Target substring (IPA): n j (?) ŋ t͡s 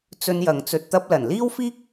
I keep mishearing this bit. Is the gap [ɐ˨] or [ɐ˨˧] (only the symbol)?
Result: ɐ˨